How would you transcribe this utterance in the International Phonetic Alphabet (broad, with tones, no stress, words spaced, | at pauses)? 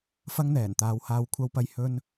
fɐ˥ŋn̪ɛː˨˩n t̪aː˨˧whaː˧w kʷʰɐ˧wpɐ˧j hɵ˧n